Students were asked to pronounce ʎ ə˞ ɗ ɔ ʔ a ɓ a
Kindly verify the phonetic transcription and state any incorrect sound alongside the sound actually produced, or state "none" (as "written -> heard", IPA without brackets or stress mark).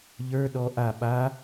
none